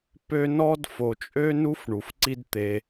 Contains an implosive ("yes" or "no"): no